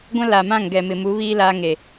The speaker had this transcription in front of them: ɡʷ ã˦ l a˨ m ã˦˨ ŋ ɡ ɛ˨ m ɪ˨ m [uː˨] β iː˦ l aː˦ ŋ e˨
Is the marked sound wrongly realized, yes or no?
yes